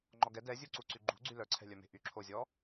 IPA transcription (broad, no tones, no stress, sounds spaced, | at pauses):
ŋ͡ǃ ɔ ɡ ɛ d ɛ zʲ u ǀ u ǀ y ɡ͡ǃ ṳ ɡ͡ǀ y l œ ǀʰ ɛ̤ lʲ œ m e̤ ʔ y ǁʰ o zʲ ɔ